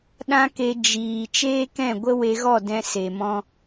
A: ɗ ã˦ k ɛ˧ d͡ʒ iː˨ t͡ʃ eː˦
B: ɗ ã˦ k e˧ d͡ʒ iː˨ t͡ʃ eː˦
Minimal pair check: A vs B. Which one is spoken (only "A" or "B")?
B